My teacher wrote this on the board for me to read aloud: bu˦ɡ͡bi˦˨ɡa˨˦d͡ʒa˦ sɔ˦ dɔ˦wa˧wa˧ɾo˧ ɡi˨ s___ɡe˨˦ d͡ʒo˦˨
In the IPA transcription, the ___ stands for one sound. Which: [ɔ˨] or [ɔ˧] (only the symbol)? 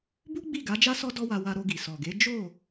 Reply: ɔ˨